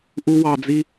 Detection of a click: absent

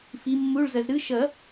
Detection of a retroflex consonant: present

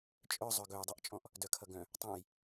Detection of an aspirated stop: present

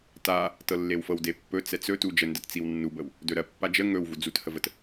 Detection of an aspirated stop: absent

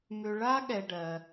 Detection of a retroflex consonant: present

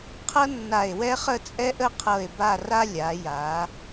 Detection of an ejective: present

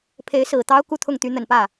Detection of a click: absent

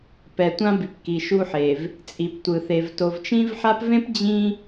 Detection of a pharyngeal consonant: present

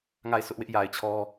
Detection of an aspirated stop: present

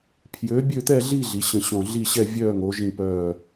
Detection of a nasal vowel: present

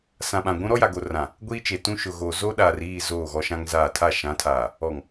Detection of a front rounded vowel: absent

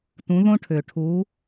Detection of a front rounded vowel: present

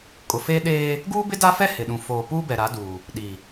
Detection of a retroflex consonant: absent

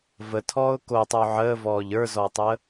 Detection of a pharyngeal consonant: present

